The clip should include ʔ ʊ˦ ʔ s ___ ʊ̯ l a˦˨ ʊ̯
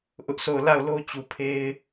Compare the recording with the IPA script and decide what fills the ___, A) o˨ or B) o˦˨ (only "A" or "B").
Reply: B